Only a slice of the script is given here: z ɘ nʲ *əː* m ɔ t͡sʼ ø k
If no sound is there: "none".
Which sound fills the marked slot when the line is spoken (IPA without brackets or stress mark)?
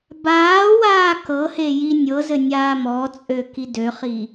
aː